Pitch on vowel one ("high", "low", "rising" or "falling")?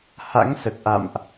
rising